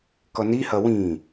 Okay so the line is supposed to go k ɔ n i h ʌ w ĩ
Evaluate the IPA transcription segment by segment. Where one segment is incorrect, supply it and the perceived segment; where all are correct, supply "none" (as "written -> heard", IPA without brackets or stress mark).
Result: none